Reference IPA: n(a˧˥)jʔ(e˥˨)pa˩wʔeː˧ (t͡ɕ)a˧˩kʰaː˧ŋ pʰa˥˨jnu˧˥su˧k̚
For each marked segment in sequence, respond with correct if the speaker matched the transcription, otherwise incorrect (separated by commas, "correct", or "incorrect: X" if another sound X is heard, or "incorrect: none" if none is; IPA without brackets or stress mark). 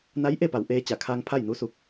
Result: correct, correct, correct